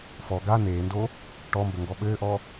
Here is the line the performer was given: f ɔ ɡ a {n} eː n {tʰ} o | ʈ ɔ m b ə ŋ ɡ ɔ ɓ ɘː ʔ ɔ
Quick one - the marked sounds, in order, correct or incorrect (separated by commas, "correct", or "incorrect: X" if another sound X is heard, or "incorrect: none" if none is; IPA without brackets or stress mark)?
correct, incorrect: d